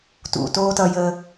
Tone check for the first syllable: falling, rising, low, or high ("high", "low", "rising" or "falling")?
low